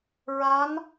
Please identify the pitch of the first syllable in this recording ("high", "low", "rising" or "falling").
rising